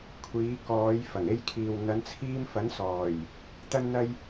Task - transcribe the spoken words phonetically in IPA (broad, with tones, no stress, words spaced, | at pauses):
kʷʰiː˨˧kɔː˨˧j fɐ˨˩ŋe˧jkʰiː˨w n̪ɐ˨˧nt͡sʰiː˧mfɐ˨˥nsɔː˨˩j | t̪ɐ˥nn̪ɐ˥j